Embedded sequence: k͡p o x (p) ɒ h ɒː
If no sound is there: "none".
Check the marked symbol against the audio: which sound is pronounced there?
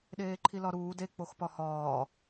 p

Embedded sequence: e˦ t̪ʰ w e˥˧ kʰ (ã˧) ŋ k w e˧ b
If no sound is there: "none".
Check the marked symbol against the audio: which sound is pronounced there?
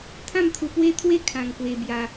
ã˧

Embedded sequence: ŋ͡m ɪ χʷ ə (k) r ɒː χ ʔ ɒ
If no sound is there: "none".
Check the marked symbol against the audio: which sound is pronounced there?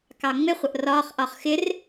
ʔ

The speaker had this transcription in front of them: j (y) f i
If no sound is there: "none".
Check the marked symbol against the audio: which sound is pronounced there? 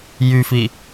y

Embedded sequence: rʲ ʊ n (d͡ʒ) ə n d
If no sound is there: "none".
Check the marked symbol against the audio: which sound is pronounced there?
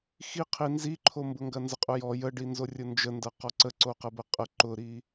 d͡ʒ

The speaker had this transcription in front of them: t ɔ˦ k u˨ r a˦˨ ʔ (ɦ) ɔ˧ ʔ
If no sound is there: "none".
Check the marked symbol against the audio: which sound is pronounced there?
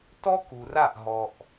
ɦ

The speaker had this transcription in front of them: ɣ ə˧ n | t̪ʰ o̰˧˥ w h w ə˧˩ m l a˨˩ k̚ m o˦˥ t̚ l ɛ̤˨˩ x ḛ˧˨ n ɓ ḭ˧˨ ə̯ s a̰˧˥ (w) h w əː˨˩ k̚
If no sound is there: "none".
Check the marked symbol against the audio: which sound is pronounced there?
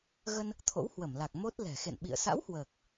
w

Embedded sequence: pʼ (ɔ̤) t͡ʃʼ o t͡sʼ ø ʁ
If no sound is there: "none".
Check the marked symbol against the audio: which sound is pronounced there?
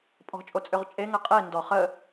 ɔ̤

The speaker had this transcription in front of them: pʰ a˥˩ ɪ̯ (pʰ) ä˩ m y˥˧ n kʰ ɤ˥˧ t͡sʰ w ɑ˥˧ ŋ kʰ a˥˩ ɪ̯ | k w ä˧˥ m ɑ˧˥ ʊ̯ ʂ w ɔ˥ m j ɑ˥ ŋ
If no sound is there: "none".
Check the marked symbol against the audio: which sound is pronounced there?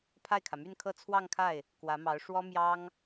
kʰ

